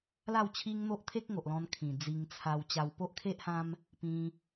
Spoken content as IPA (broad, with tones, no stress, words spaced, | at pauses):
la˥˧wt͡ɕʰi˦ŋn̪o˦ʔ t̪ʰe˦k̚ŋo˨ʔlɔ̃˧n kʰĩ˨˩d͡zi˧ŋ t͡sʰa˧w t͡ɕa˧wpo˦ʔkʰe˦ʔhã˦m | pĩ˧